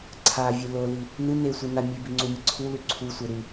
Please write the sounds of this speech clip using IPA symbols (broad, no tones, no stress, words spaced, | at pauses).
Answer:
ǀʰavʲe loli | nɨ nesʷi na mʲʉbiŋ͡ǀumʲɨ ǀʰulʉ ǀʰusʷe ɾʉ